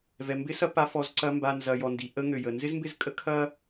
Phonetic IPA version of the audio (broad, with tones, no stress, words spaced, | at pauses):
vɛ˨mbɪ˦sɐ˦ pa˦fɔ˦zǀɐ˦ mba˨nzɐ˨ jɔ˨ndi˨ ʔə˦ ŋø˨jə˨ nzɪ˦zmbɪ˦˨zkʼə˦ kʰɐ˦